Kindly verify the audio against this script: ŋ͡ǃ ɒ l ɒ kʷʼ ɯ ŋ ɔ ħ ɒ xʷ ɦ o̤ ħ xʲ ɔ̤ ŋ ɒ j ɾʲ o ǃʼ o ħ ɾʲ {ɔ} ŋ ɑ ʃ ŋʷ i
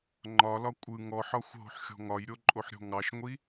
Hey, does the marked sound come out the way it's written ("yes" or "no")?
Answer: no